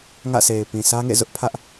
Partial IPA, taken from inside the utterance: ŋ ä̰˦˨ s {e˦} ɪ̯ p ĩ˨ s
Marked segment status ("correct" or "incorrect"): incorrect